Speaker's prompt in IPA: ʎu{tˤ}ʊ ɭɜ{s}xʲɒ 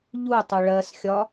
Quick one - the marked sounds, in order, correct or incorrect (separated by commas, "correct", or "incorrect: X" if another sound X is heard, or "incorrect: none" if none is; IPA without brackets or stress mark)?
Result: correct, correct